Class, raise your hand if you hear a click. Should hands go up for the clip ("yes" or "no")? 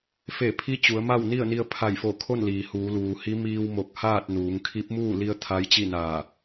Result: no